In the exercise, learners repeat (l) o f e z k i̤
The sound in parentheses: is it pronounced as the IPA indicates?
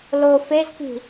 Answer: yes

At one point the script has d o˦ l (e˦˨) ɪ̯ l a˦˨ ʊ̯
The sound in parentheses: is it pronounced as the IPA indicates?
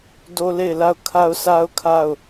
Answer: yes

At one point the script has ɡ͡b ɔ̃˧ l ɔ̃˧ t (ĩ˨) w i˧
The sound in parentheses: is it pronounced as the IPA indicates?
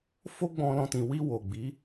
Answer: yes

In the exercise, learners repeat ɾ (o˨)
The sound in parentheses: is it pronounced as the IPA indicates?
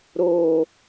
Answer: yes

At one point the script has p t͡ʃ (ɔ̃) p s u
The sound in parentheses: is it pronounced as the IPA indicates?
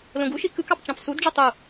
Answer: no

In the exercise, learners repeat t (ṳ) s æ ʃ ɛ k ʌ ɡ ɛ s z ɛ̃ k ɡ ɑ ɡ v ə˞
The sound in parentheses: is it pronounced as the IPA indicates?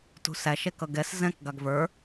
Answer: yes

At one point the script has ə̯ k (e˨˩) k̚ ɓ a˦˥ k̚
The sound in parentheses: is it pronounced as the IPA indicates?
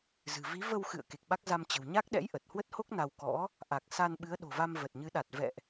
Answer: yes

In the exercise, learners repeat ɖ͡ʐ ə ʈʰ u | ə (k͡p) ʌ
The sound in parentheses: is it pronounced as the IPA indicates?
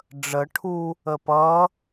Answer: no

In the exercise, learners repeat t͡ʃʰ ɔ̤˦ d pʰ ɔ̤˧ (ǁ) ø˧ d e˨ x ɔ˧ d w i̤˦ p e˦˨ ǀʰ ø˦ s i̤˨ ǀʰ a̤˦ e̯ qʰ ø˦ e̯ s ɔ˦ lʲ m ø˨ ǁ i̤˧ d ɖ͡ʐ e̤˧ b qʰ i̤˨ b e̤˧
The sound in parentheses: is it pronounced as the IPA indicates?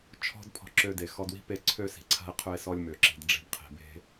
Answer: yes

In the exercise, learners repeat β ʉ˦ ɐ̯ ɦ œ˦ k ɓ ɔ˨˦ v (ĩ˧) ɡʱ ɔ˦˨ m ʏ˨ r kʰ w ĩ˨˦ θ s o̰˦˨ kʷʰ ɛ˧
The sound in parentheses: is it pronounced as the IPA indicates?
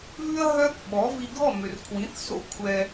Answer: no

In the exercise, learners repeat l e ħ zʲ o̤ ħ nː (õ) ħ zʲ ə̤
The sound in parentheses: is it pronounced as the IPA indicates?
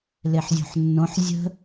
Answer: yes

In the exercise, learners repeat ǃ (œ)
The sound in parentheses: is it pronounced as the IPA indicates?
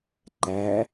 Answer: no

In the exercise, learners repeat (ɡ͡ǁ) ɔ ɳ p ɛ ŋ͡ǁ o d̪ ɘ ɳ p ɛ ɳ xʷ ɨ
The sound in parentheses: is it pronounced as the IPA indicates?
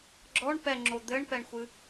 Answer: yes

